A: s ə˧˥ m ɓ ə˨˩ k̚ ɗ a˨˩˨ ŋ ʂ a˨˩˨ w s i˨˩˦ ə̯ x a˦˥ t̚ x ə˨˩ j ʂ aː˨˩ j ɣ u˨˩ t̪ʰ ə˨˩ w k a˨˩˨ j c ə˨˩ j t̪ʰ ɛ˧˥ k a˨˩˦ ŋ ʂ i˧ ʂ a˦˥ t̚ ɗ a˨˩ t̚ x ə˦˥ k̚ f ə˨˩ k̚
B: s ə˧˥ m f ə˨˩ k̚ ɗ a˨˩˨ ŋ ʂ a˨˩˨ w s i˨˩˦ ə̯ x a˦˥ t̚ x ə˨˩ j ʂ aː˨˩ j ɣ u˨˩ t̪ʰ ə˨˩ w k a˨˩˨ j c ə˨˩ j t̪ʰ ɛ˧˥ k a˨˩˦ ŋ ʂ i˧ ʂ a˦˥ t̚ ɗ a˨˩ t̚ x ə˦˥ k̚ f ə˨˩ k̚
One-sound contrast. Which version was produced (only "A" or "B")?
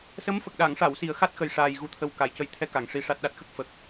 B